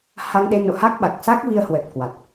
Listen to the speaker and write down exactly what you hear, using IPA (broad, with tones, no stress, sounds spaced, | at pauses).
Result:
h a˧ ŋ ɗ e˧ n o̰˧˨ h a˦˥ k̚ ɓ a˨˩ k̚ s a˦˥ k̚ v i˧ ə̯ h w ə˨˩ t̚ k w a˨˩ t̚